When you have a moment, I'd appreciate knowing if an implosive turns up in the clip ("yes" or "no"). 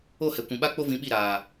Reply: yes